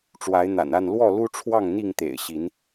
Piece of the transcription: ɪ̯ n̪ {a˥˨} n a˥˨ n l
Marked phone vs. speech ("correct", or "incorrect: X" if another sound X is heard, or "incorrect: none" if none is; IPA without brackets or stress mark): incorrect: a̰˨˩